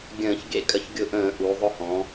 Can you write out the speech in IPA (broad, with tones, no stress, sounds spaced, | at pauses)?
ɡʲ ə̃ː˧˩˧ ç ɡ ḛ˧ kʼ ə˧˩˧ ç ɡʲ ʊ˧ ʔ ə̃ː˧˩˧ ʔ u˩˧ ðˤ ʊ˧ h ɔ̃˩˧